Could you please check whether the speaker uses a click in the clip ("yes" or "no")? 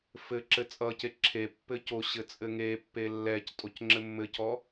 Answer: yes